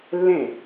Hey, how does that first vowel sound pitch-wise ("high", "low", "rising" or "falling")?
falling